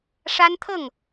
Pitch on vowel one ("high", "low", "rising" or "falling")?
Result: high